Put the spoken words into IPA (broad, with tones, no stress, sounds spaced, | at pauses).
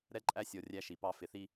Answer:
ɾ ɛ˦ ǃʼ æ˦ sʲ ɔ˨ rʲ æ˦ ʃ i˨ p ɑ˦ f ɪ˨ θ i˦